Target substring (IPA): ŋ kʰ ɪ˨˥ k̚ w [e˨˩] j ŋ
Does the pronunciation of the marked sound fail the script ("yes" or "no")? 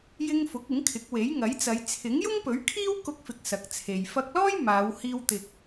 yes